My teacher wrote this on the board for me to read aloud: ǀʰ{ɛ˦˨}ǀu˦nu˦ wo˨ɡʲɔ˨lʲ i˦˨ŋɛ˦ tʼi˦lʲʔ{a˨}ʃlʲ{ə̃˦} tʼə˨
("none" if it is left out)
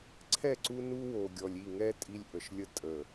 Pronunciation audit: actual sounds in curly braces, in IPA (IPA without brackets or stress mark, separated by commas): ɛ˦˨, ə˨, ə˦